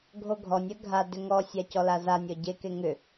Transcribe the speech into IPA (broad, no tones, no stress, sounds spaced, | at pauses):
ɡʱ o ɡʱ ɔ nʲ ɜ ɡʱ a d ʏ ŋ ɔ sʲ a c ɔ l a z a nʲ ɔ ɟ e k e ŋ ʏ